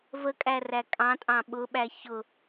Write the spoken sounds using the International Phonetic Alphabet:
vəkʼæræ kʼɑ̃tʼɑ̃ ɓʊɓæ çʊ

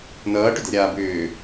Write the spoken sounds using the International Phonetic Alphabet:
nʌːʈʏdɛ̤ɾʲaː bʏː

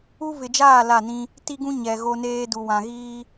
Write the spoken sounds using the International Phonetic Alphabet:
u˦ vɪ˨d͡ʒaː˦˨ la˦˨nĩ˦ | ti˦ɡũ˦ ɲɛ˨ ɣo˦neː˦ du˨wã˨ɣiː˦

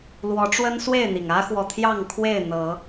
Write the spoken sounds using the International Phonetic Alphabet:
lwɔ˨˦ʈ͡ʂwə˦nswe˥˨ɪ̯n̪i˩ŋ ä˦xwɔ˨t̪ʰjɑ˥˨ŋkʰwe˥˨ɪ̯ n̪ɤ˨˦

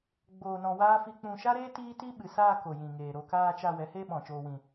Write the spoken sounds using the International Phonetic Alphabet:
ɡ͡boː˧nɔ̃˧waː˦ fi˧k͡pũ˧ʃa˦ɾeː˦ tiː˦ti˦ ɓɨ˨saː˧ ko˨jĩ˨ŋeː˨ ɾo˧ kaː˧t͡ʃa˧ wɛ˨˦heː˦ɓɔ̃˨ t͡ʃoː˨wĩ˨

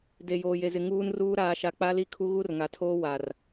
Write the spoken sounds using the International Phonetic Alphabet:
de˨joː˨je˨zɪ˨ ŋuː˦nruː˦ ɾaː˨ʃa˨ k͡pa˦li˦kʰu˦ɣu˦r ŋa˨tʰoː˦ wa˨r

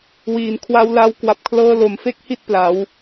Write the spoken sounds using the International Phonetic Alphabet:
wiː˩˦nkʰwa˧wla˦˥w kwa˨˩p̚kʰlɤː˧ lo˨˩mfe˥˩k̚hi˥˩t̚ pla˩˦w

